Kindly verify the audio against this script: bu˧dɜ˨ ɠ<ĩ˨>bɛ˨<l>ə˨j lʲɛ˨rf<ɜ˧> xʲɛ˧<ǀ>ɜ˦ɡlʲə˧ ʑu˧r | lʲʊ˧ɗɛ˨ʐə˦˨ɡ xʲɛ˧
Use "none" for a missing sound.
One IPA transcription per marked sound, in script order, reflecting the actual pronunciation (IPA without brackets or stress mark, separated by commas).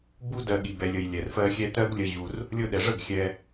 i˨, lʲ, ɜ˧, t